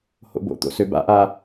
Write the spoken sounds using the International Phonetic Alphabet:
h o̰ b o̰ t̪ o̰ s ø b a̰ ʔ a

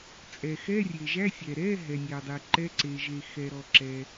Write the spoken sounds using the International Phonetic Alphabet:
t͡sʼ ɛ˩ x ɛ˧˥˧ rʲ e˩ ʒ æ˧˥˧ sʲ ɛ˩ ɾ ɛ˧˥˧ ɦ ɛ˩ nʲ æ˩ dˤ e˩ ǃ ɛ˧˥˧ ǀ e˩ ʒ e˩ x ɛ˩ ɾ ɔ˩ ǁ ɛ˩

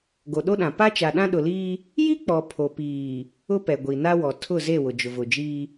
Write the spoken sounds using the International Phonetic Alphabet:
ɡ o˨ ɗ o˦ ɗ ã˨ p a˦ t͡ʃ a˨ ɗ ã˦ ɗ ʊ˨ l iː˦ | j i˦ k͡p ɔ˨ pʰ o˨ p iː˨ | ʊ˦ p ɛ˨ ɡʷ i˨ n a˦ w ɔ˨ tʰ ʊ˦˨ z e˦˨ w ʊ˨ d͡ʒ ʊ˨ v ʊ˨ d͡ʒ iː˦

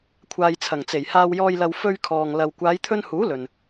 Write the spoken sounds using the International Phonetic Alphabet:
kʷʰ aː˨ j t͡sʰ ɐ˨˩ ŋ t͡s e˨˩ j h aː˨ w j ɔː˨ j l ɐ˨ w f ɵ˧ ɥ kʰ ɔː˨ ŋ l ɐ˨ w kʷ aː˨˧ j t̪ʰ ɵ˧ n h uː˨˥ l ɵ˨ n

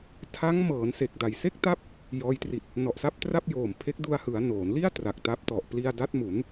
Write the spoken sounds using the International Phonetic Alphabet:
tʰ a˦˥ ŋ m ɤː˩˦ n s e˨˩ k̚ d a˨˩ j s e˥˩ k̚ t a˦˥ p̚ | j ɔː˦˥ j t r i˨˩ t̚ | n ɔ˨˩ ʔ s a˥˩ p̚ t r a˥˩ p̚ j oː˨˩ m pʰ e˦˥ k̚ d u˧ a̯ h ɯ˩˦ a̯ n oː˩˦ n l i˥˩ a̯ t r a˨˩ k̚ t a˦˥ p̚ t ɔ˨˩ ʔ p l i˧ a̯ d a˦˥ t̚ m u˩˦ n

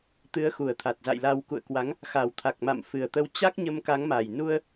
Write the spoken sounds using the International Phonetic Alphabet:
t̪ ɨ˨˦ ə̯ x u˨˩ ə̯ t̪ʰ a˨˩ t̚ z a̰˧˨ j l a˧ w k ṵ˧˨ ə̯ k w a˨˦ ŋ | x a˨˩ w t̪ʰ a˨˩ k̚ m a̰˧˨ m f ɨ˨˩ ə̯ t̪ ə˨˦ w t͡ɕ a˦˥ k̚ ɲ ə˧ m k a˨˦ ŋ m a˨˩ j n u˧ ə̯

